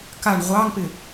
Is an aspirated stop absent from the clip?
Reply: yes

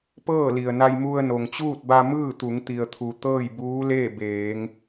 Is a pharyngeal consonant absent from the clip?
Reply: yes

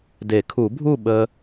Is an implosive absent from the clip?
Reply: no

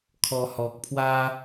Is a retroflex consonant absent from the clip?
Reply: yes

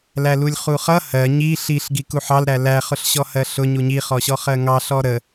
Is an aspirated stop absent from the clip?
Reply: yes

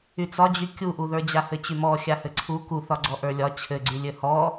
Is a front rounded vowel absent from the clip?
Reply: no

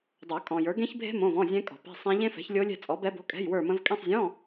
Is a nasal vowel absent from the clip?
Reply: no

